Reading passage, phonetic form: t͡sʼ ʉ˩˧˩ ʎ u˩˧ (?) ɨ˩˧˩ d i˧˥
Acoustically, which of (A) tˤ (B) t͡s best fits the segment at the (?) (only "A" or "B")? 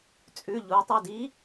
A